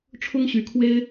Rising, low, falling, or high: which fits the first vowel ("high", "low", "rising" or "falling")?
high